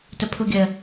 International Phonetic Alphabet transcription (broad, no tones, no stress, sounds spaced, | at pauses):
t ə pʰ u ɡʲ ə